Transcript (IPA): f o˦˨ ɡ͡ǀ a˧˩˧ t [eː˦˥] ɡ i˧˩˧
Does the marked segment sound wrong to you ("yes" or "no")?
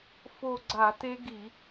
yes